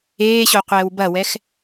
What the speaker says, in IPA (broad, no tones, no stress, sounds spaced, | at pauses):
eː ɕ o qʷ ɛː w b ɐ w ɛ x